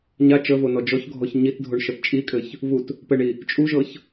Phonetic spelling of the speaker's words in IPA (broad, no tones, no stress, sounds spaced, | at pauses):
ɲ a t͡ʃ ə v o n ɔ d͡ʒ ɔ ç ɡʱ ɔ ç ɲ i t dʱ o ɳ ʃ ɤ t t͡ʃʼ i kʼ ɘ ç | v u t | p ɘ ɳ i | t͡ʃʼ u ʒ ɤ ç